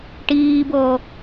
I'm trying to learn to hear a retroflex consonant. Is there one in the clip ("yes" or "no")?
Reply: yes